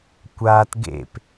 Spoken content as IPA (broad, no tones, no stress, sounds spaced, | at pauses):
kʷ aː t ɡ ḛ p